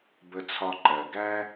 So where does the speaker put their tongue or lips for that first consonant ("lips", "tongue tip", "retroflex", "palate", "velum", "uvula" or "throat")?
lips